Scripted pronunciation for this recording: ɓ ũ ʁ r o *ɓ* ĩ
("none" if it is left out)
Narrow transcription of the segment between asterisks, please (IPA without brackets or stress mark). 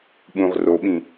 ɓ